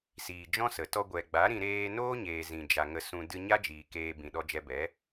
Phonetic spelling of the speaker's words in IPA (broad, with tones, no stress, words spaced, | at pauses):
siː˨d͡ʒɔ̃˦sə˨ tɔ˧ɡʷɛ˨ɡ͡ba˨˦ɾĩ˧ ɾeː˧noː˦ɲeː˨ zĩ˨ d͡ʒa˨ ŋə˧sũ˧ dɨ˧ɲa˦d͡ʒiː˨ keː˧ bĩ˨ɗɔ˧d͡ʒɛ˧bɛ˨˦